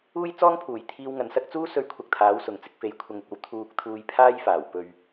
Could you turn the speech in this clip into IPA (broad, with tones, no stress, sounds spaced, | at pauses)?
uː˥ j t͡s ɔː˥ ŋ pʰ uː˨˩ j t̪ʰ iː˧ w ŋ ɐ˧ n s ɐ˥ k̚ t͡s uː˥ s ɵ˧ ɥ kʷʰ ɐ˨ k̚ t̪ʰ aː˨˥ w s ʊ˨ ŋ t͡s ɪ˧ k̚ f e˨˧ j kʷʰ ɐ˨ ŋ ɪ˨ k̚ ɐ˧ w t̪ʰ uː˧ k̚ t̪ʰ uː˧ j pʰ aː˥ j f aː˨˩ w p ɵ˨ ɥ